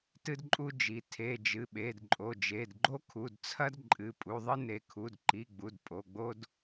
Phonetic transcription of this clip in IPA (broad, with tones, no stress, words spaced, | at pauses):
tɨ˦dǃʼu˦d͡ʒi˩˧˩ tʰe˩˧˩ d͡ʒɨ˩˧˩ɓe˩˧˩dǃʼo˩˧˩ d͡ʒe˩˧˩dɡ͡ǃo˦kʰu˩˧˩dt͡sʰɐ˦d ǃʼɨ˩˧˩pʼu˩˧˩ðˤɨ˦ne˩˧˩ kʰu˩˧˩dǃi˩˧˩ ɡ͡bu˩˧˩d pʼo˩˧˩ɡ͡bo˦d